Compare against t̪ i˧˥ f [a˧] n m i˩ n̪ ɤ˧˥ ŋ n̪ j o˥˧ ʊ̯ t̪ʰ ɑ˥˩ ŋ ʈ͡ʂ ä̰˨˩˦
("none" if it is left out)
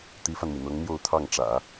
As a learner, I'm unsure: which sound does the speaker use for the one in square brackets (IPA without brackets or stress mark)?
a˧